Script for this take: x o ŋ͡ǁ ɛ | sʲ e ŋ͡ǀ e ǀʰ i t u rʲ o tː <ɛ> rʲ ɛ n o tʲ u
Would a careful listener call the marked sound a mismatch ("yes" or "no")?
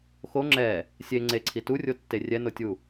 yes